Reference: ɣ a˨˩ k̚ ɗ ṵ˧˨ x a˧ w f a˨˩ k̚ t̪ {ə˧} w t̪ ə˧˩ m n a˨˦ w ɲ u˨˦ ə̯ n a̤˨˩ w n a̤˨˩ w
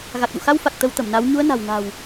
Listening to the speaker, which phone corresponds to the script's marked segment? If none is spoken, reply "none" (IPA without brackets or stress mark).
ə˧